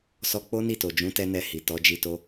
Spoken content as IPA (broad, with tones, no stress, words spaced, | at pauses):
sɔ˦ k͡po˦ni˦˨to˨d͡ʒũ˨˦ tɛ˦nɛ˧ hi˨ tɔ˨˦d͡ʒi˧to˦